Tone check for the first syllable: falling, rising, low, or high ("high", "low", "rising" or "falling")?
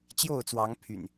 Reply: falling